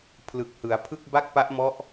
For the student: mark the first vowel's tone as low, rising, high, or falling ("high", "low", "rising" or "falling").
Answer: low